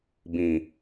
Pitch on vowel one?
low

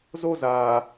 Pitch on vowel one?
high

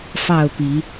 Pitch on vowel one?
falling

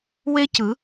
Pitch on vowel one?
high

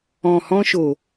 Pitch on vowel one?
low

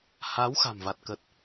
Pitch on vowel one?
rising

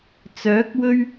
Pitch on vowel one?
rising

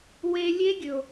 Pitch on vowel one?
high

